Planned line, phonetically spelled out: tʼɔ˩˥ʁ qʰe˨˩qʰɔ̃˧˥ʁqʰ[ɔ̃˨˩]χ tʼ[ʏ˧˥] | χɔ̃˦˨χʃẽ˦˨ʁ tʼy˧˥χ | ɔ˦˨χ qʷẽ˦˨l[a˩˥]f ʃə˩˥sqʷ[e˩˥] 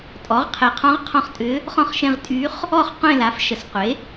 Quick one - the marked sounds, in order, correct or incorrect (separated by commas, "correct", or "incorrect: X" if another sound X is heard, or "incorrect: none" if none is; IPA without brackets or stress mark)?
incorrect: ɔ̃˦˨, correct, correct, correct